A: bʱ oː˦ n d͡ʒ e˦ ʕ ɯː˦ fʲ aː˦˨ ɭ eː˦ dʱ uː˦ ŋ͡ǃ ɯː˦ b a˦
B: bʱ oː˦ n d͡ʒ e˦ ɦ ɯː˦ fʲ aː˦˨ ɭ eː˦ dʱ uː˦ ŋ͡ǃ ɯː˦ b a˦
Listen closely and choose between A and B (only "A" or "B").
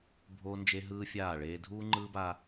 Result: B